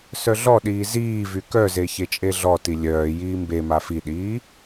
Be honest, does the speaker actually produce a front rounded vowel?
yes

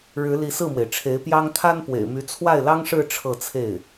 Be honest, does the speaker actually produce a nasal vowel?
no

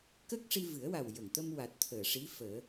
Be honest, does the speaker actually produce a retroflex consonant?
yes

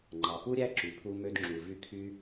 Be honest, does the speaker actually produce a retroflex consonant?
no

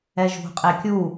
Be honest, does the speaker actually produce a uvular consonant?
yes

